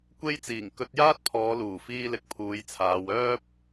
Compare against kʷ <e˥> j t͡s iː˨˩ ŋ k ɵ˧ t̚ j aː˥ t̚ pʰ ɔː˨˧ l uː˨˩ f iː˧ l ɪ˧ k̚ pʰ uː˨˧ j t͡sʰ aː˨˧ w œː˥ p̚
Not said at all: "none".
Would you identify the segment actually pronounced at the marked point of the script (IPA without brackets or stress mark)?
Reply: e˥